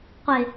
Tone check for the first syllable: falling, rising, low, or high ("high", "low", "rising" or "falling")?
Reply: low